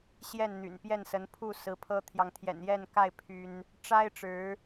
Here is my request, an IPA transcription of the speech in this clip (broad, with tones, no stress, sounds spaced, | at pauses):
ɕ j ɛ˥˨ n n̪ y̰˨˩ n p j ɛ˥˨ n s ə˨˦ n pʰ u˥˨ s ɹ̩˨˦ pʰ ɤ˦ t̪ʰ j ɑ˨ ŋ t̪ʰ j ɛ̰˨˩ n j ɛ˥˨ n k a˥˨ ɪ̯ pʰ y˦ n | ʈ͡ʂ a˦ ɪ̯ ʈ͡ʂ ɻ̩˨˦